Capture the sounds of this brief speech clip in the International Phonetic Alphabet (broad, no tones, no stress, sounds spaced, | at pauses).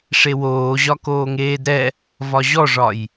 ʂ e w oː ʑ ɒ k oː ŋ eː d ɾ ɛ | v ɒ ʑ ɔ ʐ ɒ j